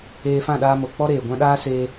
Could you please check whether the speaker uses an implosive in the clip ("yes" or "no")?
yes